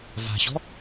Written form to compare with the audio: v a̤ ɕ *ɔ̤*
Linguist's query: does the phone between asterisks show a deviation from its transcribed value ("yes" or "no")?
no